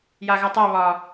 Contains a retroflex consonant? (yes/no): no